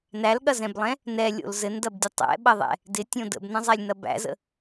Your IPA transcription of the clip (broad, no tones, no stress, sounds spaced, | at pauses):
n æ l ɠ ɐ z ɛ̃ b lˠ ɛ̃ | n ɛ lʲ o̰ l z ɘ n d ɐ b dʲ ɐ tˤ ɛ̰ ɓ ɐ ðˤ ɛ̰ | d ɪ tʲ õ d ə̰ b n ɐ̃ zˤ æ lʲ n ɐ b æ̰ z ə̰